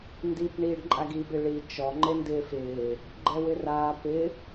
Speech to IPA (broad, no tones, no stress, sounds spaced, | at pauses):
n d i p ɳ iː ɖ ǃʼ a ɡ i b ɪ ɭ i t͡ʃ ɔ ŋ͡ǃ e n d ɪː f ɪː | ɡ͡ǃ ɛ w ɪ r aː p ɪ